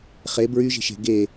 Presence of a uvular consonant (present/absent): present